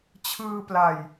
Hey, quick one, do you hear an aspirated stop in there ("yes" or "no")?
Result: yes